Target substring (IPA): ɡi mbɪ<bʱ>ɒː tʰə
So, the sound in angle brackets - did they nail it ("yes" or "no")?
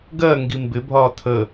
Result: yes